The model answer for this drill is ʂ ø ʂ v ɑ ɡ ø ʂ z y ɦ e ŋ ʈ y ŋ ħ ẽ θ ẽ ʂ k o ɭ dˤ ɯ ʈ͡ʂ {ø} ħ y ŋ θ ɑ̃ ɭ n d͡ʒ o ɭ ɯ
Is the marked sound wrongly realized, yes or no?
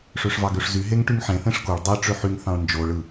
no